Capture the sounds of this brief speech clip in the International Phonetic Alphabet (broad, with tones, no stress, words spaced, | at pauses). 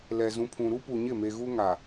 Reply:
lɛ˨zũ˨pʰũ˨ ɾu˦pu˨ɲɪ˦˨me˨ ɣu˦ŋa˨